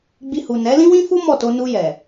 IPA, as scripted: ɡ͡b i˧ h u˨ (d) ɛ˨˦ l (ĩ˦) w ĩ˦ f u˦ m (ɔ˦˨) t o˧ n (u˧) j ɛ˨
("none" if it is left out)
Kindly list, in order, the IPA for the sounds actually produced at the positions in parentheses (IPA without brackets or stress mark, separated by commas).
n, ĩ˦, ɔ˦˨, u˧